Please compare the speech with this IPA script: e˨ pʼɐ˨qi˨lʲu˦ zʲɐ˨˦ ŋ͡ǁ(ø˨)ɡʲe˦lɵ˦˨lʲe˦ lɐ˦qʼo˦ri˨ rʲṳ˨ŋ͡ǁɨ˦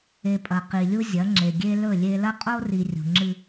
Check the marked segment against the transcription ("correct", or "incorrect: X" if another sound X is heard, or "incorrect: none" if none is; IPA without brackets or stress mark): incorrect: e˨